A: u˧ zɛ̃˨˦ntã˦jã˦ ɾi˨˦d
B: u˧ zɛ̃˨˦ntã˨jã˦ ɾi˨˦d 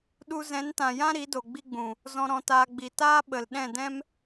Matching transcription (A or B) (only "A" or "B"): B